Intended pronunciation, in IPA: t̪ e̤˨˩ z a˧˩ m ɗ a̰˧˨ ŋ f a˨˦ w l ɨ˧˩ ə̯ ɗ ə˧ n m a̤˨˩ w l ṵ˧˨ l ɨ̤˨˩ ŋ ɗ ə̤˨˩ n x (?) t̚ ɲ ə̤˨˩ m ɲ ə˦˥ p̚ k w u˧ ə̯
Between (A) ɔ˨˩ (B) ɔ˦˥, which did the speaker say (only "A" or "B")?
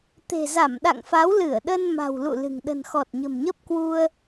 A